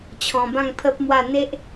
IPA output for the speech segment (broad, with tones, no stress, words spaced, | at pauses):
t͡ɕʰɔ̃˧bã˥˧ŋpʰə˦p̚mwa˥˧ n̪e˦ʔ